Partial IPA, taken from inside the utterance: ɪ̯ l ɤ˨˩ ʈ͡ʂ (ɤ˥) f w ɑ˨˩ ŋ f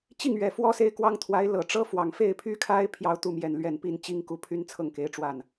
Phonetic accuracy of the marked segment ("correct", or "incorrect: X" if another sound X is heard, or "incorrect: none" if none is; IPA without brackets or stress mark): correct